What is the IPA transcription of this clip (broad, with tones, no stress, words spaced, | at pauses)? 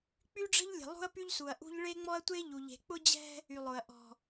k͡py˦ɖ͡ʐə̤˦ʎlʲə̤˨ lˠṳ˦ɐ̯py˦ʎsu˨ɐ̯ʔṳ˦ʎ ɭe˦ŋ͡mɔ˦ɐ̯tʷe˦ ʎu˨ʎe̤˨ k͡pʊ˦d͡ʑɛ̤˦ | y˨lˠʊ˨ɐ̯ ʔɔ̤˨